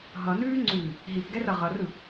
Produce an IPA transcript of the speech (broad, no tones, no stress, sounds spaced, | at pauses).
ɦ ʌ n ʉː ŋ͡ǀ ʉː | ɦ i p ɡ ɛ r ʌ ʁ ʌ r ɯ